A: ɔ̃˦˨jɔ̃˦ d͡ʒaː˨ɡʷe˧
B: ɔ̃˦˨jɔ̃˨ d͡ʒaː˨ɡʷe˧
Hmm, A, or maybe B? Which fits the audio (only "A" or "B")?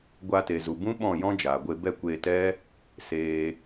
A